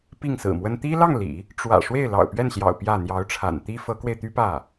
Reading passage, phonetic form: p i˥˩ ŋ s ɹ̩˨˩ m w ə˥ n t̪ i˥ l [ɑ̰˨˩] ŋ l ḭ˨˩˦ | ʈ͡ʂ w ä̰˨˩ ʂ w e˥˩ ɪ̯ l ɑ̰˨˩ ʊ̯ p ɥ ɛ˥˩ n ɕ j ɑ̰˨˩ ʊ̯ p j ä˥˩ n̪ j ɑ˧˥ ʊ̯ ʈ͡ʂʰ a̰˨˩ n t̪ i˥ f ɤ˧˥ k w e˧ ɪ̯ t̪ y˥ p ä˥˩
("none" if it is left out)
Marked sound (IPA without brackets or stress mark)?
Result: ɑ˥˩